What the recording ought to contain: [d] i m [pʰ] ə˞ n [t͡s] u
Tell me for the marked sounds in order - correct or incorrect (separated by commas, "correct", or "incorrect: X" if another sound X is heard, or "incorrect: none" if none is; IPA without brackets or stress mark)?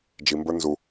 incorrect: d͡ʒ, incorrect: b, incorrect: z